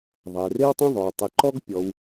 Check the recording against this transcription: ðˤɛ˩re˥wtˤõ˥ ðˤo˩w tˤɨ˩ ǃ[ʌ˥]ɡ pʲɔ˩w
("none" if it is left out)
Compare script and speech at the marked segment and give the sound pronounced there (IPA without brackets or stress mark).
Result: ɔ˥